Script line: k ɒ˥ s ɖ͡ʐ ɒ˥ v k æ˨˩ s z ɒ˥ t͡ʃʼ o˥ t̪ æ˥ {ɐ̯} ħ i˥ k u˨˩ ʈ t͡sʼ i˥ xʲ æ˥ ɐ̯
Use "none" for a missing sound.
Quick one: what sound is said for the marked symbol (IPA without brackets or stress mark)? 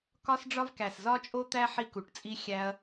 none